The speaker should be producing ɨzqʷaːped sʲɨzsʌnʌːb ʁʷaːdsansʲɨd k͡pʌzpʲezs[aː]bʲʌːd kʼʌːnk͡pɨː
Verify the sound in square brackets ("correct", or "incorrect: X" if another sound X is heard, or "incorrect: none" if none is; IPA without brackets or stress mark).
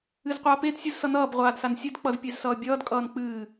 incorrect: ʌː